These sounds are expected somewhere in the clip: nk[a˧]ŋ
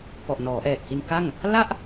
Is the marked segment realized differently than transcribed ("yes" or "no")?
yes